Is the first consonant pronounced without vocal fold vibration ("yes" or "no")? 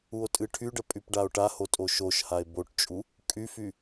yes